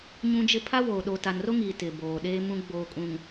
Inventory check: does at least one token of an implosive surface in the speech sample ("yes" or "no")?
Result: yes